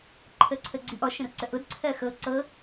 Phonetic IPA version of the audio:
ǃʰ əː ǀʰ əː ɡ͡ǀ i ʔ ɔ ʃ ə̃ r ǀ ə ʔ ʊ d ǀʰ ɜ x ɤ ǀ ɤ

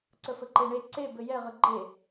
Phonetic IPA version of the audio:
ǀ ə f ə ǃ e ɳ e ǀ e b ɘ j ɛ ʁ ə ɡ͡ǃ e

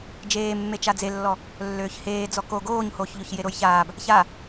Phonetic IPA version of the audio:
d͡ʒ eː mː e t͡ʃ a d͡z e lː ɔ | lː øː ç h eː d͡z ɔ k o ɡ oː ɲ h oː ç ʎ o ç j e ɾ o j ç aː b | ç a

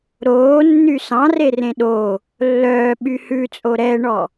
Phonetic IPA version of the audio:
ɾ oː nː y s ɑ̃ r e r ẽ ɗ o | lː œː ɓ y h ʉ t͡sʼ o ɾ ɛ ɳ ɔ

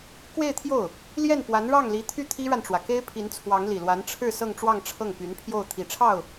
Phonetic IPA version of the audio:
k w e˥˧ ɪ̯ t̪ʰ j o˥˩ ʊ̯ | l j ɛ˥˩ n p w a˧˥ n ɻ ɑ˥˩ ŋ l i˧˥ t̪ʰ y˥˩ t̪ʰ i˥ ɻ a˨ n ʈ͡ʂ w ä˩ k e˥ ɪ̯ pʰ i˧˥ n t͡sʰ w ɑ˧˥ ŋ l i˨˩ l w a˧˥ n ʈ͡ʂʰ ɻ̩˥˧ s ɤ˥˧ ŋ ʈ͡ʂ w ɑ˥˧ ŋ ʈ͡ʂʰ ɤ˥˩ ŋ p y˧˥ n pʰ j o˥˩ ʊ̯ t̪ʰ i˨˩ ʈ͡ʂʰ ɑ˥˩ ʊ̯

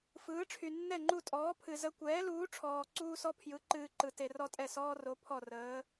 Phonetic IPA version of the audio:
f ɯː˩˥ ʈ͡ʂʰ y˩ nː ɛ˥˩ ŋ͡ǃ u˥˩ tʼ ɔː˩˥ pʰ ɨ˩ z ə˧ kʷ ɛː˩˥ l uː˩˥ ʈ͡ʂʰ ɔː˩ ǀ uː˥ s ɔ˥ pʰ j ɯ˩˥ ǃ ɨː˧ ǃ ɯ˩ t e˩ r ɔ˥ tʼ ɛ˥˩ s ɔː˥ r o˩˥ pʰ ɔ˥˩ r əː˩˥

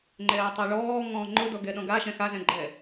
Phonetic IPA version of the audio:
ŋ͡ǃ ɛː tˤ ɛ ɭ ɔː ŋ ɔ̃ː ŋ͡ǃ ʊ d ɔ ɡ ɛ ɗ ɔ̃ ɡ a ʃ ɛ̃ x a z ɛ̃ ɡ͡ǃ ɛ

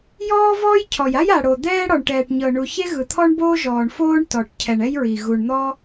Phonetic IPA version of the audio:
j ɔː˥ v ɔː˥ j cʰ ɔ˩ j a˥ j a˩ ɽ o˩ d̪ ɛː˥ ɽ ɔ˩ ɳ ʈ ɛː˩ ʈ ɲ ɤ˩ ɳ u˩ ç e˥ ɣ ɯ˩ t̪ʰ ɔ˥ ɳ b oː˥ ʒ ɔː˩ ɳ f oː˥ ɳ t ɔ˩ ʈ cʰ ɛ˩ ɳ ɛ˥ j ɹ i˩ ɣ u˩ ɳ n̪ ɔ˥

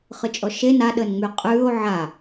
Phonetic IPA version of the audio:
χ ɯ t͡ʃʼ ɔ ʃ e n a ɗ əː n ŋ͡m y qʼ ʉː o̯ ʕ a

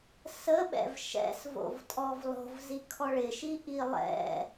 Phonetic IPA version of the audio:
s ə ɓ ɛ̰ v ʃ ɛ̰ s v o̰ v tʼ ɔ v lˠ o̤ v z i kʰ ɔ ɭ ɪ ʃ i ʔ i lˠ ɛ̰

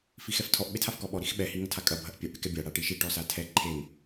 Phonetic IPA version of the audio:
f i x ɛ f tʰ ɔ ʔ ɓ e tʰ a f k ɔ ɓ ɔ ɾ i x ɓ ɛ h i ŋ ɐ tʰ a kʼ ɐ bʱ ɐ ʔ pʲ ɛ ʔ ɽ e k ɛ bʲ a ɽ a ʈ i ʃ i ʈ ɔ s a tʰ ɛ ǃʰ e ŋ

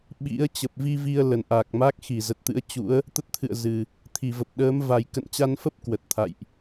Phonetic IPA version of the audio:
ɓ ḭ˧˥ ə̯ t͡ɕ ə˨˩ p̚ v i˧ v i˧ ə̯ l ə˨˩ n ʔ a˨˩ k̚ m a˦˥ k̚ x i˧˩ z ə˨˩ t̚ t̪ ɨ̰˧˥ ə̯ t͡ɕ ṵ˧˥ ə̯ | t̪ ə˦˥ t̚ t̪ʰ ɨ̰˧˨ ə̯ z ɨ˨˩ | t̪ʰ i˧˩ v ə˨˩ p̚ ɗ əː˨˦ m v a˨˩ j k ə̰˧˨ n t͡ɕ a˧ n f ə˦˥ p̚ k w ə˨˩ t̚ t̪ʰ a̰˧˨ j ʔ

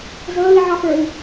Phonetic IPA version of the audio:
z əː i̯ ʕ ɑ f ə˞ i̯

